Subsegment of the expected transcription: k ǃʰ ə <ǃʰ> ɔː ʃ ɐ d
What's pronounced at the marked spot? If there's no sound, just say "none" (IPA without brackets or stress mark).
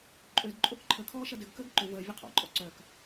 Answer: kʰ